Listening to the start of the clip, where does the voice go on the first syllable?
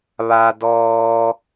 low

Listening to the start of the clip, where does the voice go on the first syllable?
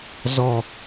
low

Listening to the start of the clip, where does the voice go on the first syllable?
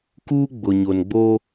high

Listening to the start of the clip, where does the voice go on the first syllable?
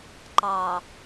low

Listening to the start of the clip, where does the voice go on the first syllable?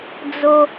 low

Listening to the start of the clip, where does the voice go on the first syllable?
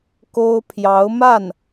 high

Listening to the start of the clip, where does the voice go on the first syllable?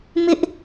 high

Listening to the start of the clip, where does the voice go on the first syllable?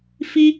high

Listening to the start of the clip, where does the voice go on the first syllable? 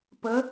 rising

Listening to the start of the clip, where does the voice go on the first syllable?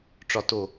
low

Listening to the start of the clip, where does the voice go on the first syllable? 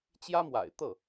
high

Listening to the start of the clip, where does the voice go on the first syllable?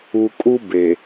low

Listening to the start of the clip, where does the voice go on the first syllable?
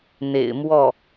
low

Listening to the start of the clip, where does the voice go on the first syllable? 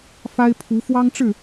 high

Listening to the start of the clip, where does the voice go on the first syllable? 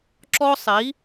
high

